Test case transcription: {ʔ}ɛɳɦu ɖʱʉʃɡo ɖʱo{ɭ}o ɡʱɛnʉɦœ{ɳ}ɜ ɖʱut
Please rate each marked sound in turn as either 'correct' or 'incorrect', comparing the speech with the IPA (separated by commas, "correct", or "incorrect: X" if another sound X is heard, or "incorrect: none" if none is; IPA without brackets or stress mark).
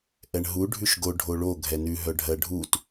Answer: correct, correct, incorrect: ɖʱ